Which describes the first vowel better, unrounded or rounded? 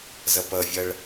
unrounded